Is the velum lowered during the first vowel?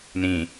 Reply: yes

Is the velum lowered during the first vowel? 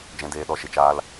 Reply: yes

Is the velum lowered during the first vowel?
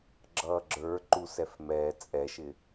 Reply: no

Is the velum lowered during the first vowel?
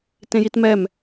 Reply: yes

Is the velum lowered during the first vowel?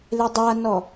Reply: no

